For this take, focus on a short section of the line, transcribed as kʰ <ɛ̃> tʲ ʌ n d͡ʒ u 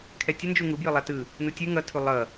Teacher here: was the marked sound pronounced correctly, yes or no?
no